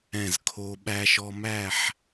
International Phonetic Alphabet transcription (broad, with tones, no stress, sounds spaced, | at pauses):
ɛ̃˧˩ z kʰ o˧ ɓ æ˧ ʃ ɔ˧ m æ˥˧ ħ